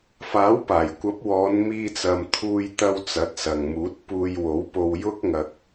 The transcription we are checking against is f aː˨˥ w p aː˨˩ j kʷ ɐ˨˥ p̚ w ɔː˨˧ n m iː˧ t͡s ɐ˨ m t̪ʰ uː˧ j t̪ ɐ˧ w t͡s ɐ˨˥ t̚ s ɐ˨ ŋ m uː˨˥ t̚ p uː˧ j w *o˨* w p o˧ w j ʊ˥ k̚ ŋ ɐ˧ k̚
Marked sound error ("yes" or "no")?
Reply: yes